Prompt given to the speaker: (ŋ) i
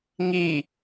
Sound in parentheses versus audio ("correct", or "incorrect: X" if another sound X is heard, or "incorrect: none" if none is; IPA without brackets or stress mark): correct